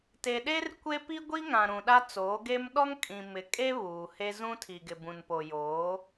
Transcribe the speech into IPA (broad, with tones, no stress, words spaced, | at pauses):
te˨ɗe˦r kʷe˦ pi˦ɡʷi˦ ŋã˨ ɾũ˨ɗa˦ t͡soː˨˦ɡe˦m ɗɔ˦ŋkʼĩ˨ mɪ˨˦ kʼe˦ βuː˨he˦ zũ˦tʰi˨ɡɪ˨ bũ˨npo˨joː˨˦